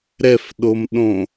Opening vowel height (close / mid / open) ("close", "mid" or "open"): mid